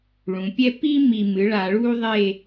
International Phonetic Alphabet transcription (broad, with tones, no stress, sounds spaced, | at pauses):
ɭ ũ˩˧ pʲ ɛ˥ p i˥ m i˨˩ m ɨ˩˥ ɭ a˧˩˧ ɭ uː˥ ðˤ e˥˨